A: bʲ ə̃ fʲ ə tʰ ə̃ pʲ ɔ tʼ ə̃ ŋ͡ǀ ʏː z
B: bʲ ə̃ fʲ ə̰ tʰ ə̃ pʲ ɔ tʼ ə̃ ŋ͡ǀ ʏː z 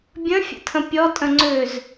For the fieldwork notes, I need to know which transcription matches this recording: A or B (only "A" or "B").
B